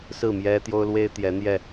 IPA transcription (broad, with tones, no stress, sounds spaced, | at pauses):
s ɹ̩˥˨ m j ɛ˦ t̪ j o˦ ʊ̯ l w e˦ ɪ̯ t̪ j ɛ˨˦ n̪ j ɛ˥˨